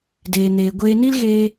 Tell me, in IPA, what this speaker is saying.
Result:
d eː˨ n eː˨ ɡʷ eː˧ n i˦ l ɣ eː˦

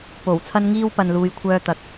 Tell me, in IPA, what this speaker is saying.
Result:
p o˨˩ w t͡sʰ ɐ˥ n ŋ iː˥ w p ɐ˨ n l uː˨ j kʷʰ œː˧ t̪ ɐ˨˥ k̚

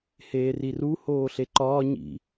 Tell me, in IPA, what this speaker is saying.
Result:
h eː r i r u h oː ɬ e ǃ ɒː ɲ ḭ

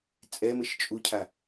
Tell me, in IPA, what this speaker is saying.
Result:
t͡sʼ ɛ m ɘ ʃ t͡ʃʼ u cʰ a

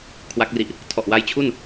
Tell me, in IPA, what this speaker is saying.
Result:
kʰ w a˦˥ k̚ r i˨˩ ʔ | tʰ ɔ˨˩ ʔ w a˦˥ j t͡ɕʰ u˥˩ n

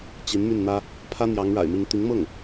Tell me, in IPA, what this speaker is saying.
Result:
t͡ɕ i˧˥ n m y˥˩ n n̪ ä˥ | pʰ ä˥ n̪ j ɑ˧˥ ŋ ɻ a̰˨˩ ɪ̯ m i˧˥ ŋ t̪ i˧˥ ŋ m ɤ˥˩ ŋ

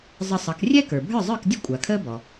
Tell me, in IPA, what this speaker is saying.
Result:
zˤ ə˧ sˤ ʌ˩˥ k rʲ ɛ˥ k ə˞˩ bʱ ə˞˥˩ zˤ ə˞˥˩ k dʲ ə˥ kʷʼ a˩ kʰ əː˥ b ɔ˩

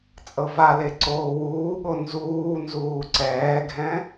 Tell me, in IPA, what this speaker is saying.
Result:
t͡sʼ ɤ v a l e ǀ oː w uː ɠ o n z uː n z uː ǀ ɛː ɡʱ ɛ̃

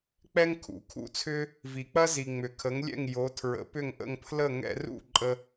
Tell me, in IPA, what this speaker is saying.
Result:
k͡p ɛ˥ ŋ kʰ ṵ˩˥ kʰ ṵ˥˩ t͡sʰ ʏ˥ | v i˩ k͡p ɐ˥ z i˩ ŋ͡m ʏ˩ kʰ ə˩˥ ŋ lʲ ɛ̰˥˩ ŋ j o˩˥ tʰ ɹ ə̰˩˥ p ʏ˥˩ ŋ ʔ ə̰˥˩ ŋ pʰ l ə˥˩ ŋ ɛ̰˧ r ṵ˥˩ ǃʼ ə˧

